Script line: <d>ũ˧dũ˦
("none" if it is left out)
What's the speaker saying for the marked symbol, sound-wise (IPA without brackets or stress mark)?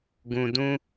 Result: ɡ